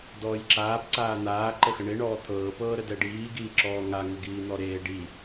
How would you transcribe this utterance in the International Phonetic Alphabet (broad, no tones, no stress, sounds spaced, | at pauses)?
d ɔː j ǁ aː p ǀ aː n̪ aː ǃ ə x ə ɳ e ɳ ɔː t̪ʰ ɤː p ɤː ɾ ə d ɛ ɖ iː ɡ iː ǁ ɔː ŋ a ŋ ə ɡ iː n̪ ɔ ɾ eː ɖ i